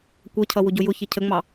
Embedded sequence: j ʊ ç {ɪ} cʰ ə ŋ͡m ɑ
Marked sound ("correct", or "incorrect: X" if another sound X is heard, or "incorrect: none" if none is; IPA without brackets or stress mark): correct